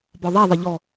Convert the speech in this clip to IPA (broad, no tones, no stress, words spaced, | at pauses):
bɔðˤɛðˤi ʎɔ